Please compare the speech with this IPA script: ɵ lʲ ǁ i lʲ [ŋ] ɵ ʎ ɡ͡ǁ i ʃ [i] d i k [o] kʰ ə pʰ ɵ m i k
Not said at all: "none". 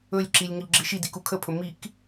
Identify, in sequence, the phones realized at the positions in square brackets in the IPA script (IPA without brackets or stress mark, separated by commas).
ŋ, i, u